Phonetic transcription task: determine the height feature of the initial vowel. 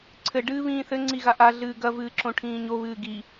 mid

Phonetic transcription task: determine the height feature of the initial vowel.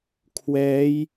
mid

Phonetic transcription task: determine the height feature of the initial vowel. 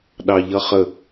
low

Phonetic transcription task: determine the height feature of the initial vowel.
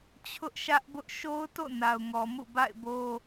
high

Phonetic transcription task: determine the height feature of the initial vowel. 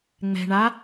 mid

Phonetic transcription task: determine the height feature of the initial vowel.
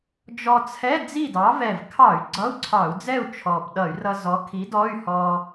mid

